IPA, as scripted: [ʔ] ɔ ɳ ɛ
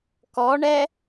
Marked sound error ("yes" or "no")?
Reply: yes